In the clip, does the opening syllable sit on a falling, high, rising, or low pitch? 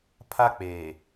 high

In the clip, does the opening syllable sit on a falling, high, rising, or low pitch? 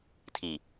low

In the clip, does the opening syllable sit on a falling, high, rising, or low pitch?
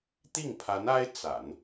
falling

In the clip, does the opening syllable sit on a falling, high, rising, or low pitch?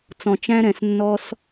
low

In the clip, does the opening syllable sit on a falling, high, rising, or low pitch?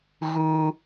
high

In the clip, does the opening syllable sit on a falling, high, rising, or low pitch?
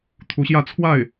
rising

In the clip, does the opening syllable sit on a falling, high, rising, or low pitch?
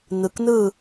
low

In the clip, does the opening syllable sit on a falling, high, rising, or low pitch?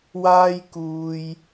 high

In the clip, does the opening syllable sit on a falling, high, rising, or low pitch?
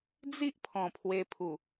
high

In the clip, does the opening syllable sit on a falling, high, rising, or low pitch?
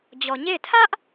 low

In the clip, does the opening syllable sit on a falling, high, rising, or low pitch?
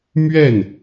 falling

